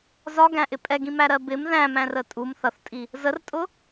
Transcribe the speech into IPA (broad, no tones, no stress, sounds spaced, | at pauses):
z ɒ ɡ æ̃ ʔ ɪ pʼ ɛ ɡ ĩ m æ ɾ ɜ b ɪ m ð æ̃ m æ̃ r ə tʼ u m θ ʌ θ tʼ i | z ə r tʼ ʊ